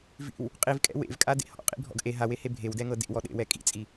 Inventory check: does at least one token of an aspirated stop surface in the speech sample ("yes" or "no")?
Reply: no